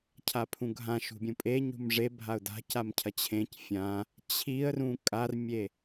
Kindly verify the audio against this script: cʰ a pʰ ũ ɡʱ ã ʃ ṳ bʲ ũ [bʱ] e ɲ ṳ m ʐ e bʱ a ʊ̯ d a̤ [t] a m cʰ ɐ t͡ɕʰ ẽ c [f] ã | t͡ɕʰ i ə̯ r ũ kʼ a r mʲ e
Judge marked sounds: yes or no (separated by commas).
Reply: no, no, no